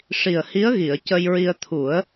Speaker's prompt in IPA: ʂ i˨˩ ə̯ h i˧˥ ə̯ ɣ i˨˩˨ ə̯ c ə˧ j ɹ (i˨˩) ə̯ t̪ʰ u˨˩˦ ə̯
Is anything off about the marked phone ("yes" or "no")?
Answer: yes